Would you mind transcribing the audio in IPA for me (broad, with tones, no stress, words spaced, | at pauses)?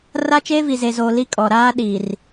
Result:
ra˦t͡ʃeː˦ vi˨ze˨zoː˨ li˦kʼɔ˨ ɾaː˦ɗi˨r